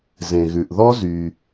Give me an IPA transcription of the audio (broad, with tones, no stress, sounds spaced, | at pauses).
z ẽ˩ ɣ ʉ˩ ʔ ð ɔ˥ z y˩